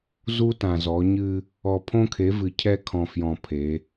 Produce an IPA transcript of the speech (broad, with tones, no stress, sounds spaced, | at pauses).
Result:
z u˦ t ã˨ z ɔ˨˦ ɲ ɨ˦ | ɔ˨ pʰ õ˦ kʰ e˨˦ v ɨ˨ cʰ ɛ˦ kʰ ɔ̃˨ f j ɔ̃˨ pʰ e˨˦